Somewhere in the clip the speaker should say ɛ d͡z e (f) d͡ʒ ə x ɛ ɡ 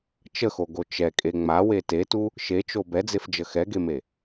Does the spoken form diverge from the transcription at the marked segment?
no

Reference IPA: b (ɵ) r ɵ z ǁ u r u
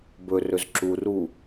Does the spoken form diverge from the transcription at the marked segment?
no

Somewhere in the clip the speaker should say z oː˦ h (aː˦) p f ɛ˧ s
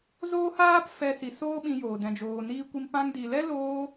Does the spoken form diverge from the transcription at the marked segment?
no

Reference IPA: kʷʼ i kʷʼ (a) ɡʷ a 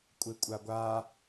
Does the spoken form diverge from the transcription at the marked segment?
no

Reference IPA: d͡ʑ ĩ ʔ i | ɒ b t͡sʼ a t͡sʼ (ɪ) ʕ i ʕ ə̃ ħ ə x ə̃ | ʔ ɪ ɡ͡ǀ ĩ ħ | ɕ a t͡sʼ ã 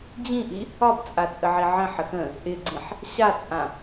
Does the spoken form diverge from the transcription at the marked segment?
yes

